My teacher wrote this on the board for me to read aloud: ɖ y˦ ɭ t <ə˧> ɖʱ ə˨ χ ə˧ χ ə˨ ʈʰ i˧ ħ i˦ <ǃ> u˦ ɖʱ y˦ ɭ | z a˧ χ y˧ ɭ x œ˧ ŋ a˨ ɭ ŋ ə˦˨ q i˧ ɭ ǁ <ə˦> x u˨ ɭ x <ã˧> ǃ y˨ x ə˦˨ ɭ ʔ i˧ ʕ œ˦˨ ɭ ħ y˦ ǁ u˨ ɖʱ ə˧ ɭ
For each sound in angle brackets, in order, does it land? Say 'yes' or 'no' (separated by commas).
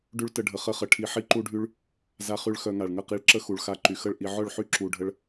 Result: yes, yes, yes, no